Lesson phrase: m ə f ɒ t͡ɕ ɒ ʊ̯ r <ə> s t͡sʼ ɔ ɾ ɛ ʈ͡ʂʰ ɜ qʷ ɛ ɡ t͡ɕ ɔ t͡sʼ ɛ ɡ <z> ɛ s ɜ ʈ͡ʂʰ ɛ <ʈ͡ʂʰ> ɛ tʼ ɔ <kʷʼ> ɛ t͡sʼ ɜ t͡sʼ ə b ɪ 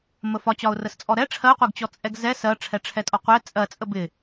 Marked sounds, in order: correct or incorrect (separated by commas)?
correct, correct, correct, incorrect